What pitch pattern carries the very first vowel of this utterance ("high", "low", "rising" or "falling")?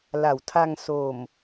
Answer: low